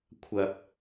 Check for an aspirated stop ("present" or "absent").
present